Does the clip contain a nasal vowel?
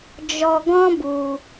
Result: yes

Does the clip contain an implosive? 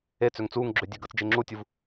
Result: no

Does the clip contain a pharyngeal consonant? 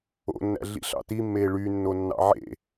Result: yes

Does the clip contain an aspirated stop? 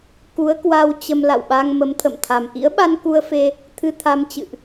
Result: yes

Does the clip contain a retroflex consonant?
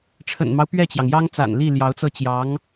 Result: yes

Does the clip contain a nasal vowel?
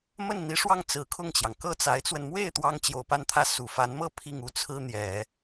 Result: no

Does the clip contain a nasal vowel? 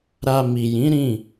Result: yes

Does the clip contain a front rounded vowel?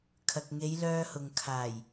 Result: yes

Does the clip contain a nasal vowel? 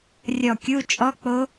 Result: no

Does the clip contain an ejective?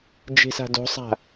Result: no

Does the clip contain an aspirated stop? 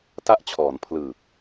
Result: yes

